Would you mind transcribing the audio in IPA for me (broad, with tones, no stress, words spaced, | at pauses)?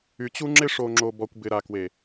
y˨ t͡ɕu˦ ŋ͡ǁɪ˦ʂo˨ŋ͡ǁo˨bɔ˨kʷ bɪ˨ɾa˨kwe˨